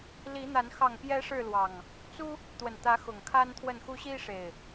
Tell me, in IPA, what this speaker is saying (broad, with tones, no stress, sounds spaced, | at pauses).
l i˨˦ n̪ a˨˦ n x ɑ˨˩ ŋ p j ɛ˨˦ ʂ ɻ̩˥˨ l w ɑ˨˩ ŋ | t͡s u˦ | t̪ w ə˨˩ n t̪ ä˨˦ x ʊ˨˩ ŋ kʰ a˦ n t̪ʰ w ə˥˨ n x u˦ ɕ i˦ ʂ e˨˩ ɪ̯